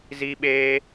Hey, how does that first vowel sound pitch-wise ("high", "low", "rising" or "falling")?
high